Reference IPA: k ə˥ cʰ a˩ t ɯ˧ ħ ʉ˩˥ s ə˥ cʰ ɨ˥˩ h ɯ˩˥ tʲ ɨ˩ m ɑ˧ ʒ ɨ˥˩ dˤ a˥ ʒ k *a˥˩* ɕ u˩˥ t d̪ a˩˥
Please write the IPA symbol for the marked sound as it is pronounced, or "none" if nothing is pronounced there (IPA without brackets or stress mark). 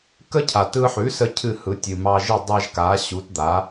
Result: a˩˥